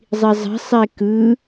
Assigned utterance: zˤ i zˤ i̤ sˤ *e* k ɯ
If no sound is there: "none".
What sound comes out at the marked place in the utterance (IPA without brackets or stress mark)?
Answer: e